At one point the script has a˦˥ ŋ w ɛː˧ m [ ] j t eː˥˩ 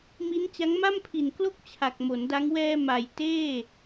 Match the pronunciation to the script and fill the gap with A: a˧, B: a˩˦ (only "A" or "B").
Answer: B